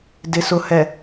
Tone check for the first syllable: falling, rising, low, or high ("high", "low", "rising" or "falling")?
low